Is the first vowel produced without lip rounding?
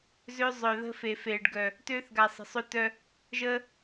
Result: no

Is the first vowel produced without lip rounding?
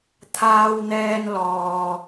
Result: yes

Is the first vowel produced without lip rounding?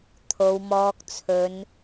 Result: no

